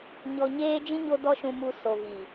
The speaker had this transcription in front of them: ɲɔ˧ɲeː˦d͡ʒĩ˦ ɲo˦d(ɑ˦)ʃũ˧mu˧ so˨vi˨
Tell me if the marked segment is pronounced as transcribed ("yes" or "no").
no